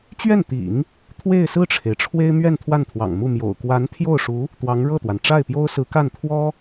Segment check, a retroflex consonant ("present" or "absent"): present